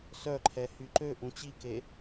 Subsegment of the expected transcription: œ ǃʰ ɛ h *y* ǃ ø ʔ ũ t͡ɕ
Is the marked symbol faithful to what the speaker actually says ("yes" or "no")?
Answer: yes